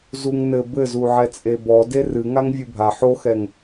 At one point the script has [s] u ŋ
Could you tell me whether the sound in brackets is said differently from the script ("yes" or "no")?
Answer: yes